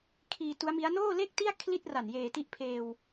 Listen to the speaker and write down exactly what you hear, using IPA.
kʰ iː˧ t u˦˥ a̯ m i˦˥ a̯ n oː˥˩ l e˥˩ k̚ t i˥˩ a̯ kʰ l i˥˩ t̚ r a˨˩ n j eː˨˩ t i˦˥ ʔ pʰ eː˧ w

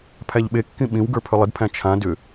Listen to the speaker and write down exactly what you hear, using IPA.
pʰ æ ʎ ɓ e kː ĩ ɓ ĩ w ɡ ə˞ pʰ ʏ lˠ ɪ d pʰ æ̃ t͡ʃʰ ã d ʏ

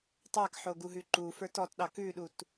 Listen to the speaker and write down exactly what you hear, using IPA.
tˤ a k ħ o ɡ u ɦ ʉ ǃ u f ə˞ t ɔ t ɗ ɑ k ʉ ɗ u t

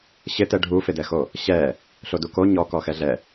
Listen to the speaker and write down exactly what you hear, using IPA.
ɕ ɪ t ɛ ɖʱ u f ɪ d ɛ x o | ɕ ɛ | ɬ o d u k o ɲ ɔ k ɔ x ɛ ɮ ɛ

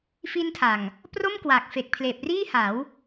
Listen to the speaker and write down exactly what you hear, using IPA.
f i˦˥ n tʰ a˨˩ ŋ | p r o˥˩ m k w a˨˩ k̚ f e˨˩ k̚ pʰ l eː˨˩ p̚ r iː˥˩ h a˩˦ w

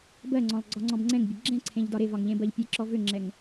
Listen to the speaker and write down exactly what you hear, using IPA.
b ɜ ŋ͡ǀ ɔ̃ lˠ ɡ͡ǀ ɒ ŋ͡ǀ ɔ̃ b ŋ͡ǀ ɛ̃ ŋ bʲ ɘ ɡ͡ǁ ɛ̃ ǀʰ ẽ ʎ d ɒ ɾ e v ɒ ŋ ʎ ẽ b ɜ ʎ pʲ e ǁ ɔ v ʏ ŋ͡ǁ ɛ ŋ

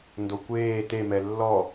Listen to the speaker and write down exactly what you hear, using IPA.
n d o kʷ eː t e m ɛ lː ɔ

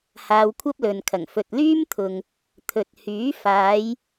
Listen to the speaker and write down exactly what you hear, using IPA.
h aː˧ w kʷʰ ɐ˥ p̚ l ɵ˨ n kʰ ɐ˨˩ ŋ f ɵ˨ t̚ l yː˥ m t̪ʰ ʊ˨ ŋ | t̪ʰ ɵ˨ t̚ h yː˨˥ f aː˨˧ j

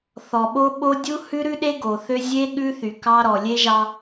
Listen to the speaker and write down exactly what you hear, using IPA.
θ ɔ˨ ɓ o˦ ɓ o˦ dʲ u˦ h ʉ˦ ɾ ʉ˦ ɗ e˦ ɡ o˨ θ ø˦ zʲ e˦ ɠ ʉ˦ θ y˨ k ɑ˦ ɾ ɔ˨ lʲ e˦ ʒ ɑ˦

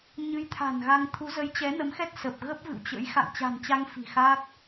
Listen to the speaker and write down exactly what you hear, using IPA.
ɲ ɨ˧ j t̪ʰ a̤˨˩ n ɣ a˧ ŋ t̪ʰ u˨˦ z ə˨˦ j t͡ɕ ɛ˨˦ n ə˨˦ m x ɛ˦˥ t̚ s ə˨˩ p̚ ɣ ə˦˥ p̚ v ɨ̰˧˨ w t͡ɕ ə̰˧˥ j x a̰˧˨ ŋ t͡ɕ a̤˨˩ n t͡ɕ a˧ ŋ f i̤˨˩ x aː˦˥ k̚

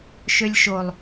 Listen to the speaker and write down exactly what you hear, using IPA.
ʃ ø lʲ ʃ o lˠ

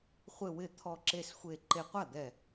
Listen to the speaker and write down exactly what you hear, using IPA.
χʷ ɪ˥˧ w ɪ˥˩ t̪ʰ ɔ˥˧ ǁ e˥˧ s xʷ e˥˧ ǃ e˧ qʷ a˥˩ d̪ ɛ˧˩

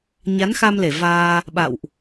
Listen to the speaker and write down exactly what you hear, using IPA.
ɲ a˨˦ n x a˧ m l e˧˩ v aː˧ | ɓ a̰˧˨ w ʔ

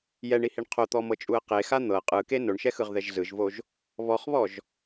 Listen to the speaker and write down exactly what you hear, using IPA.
j ɛ ɳ i h i ɳ qʰ o t̪ ɔ m ɤ t͡ʃʼ u ə̯ q e x a n̪ ɤ qʼ ɯ k e n o ɳ ʃ ɛ x ɯ ʁ ð ɛ ʒ z ɯ ʒ v o ʒ | β ɔ χ β ɔ ʒ

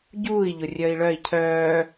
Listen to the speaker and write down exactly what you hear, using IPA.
ɟ uː i̯ ʎ ʊ rʲ œ i̯ ɭ œ i̯ cʰ œː

